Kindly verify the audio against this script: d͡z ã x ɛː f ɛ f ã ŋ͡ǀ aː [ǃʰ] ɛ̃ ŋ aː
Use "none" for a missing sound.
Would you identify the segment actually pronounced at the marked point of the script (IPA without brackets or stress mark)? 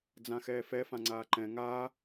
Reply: ǃ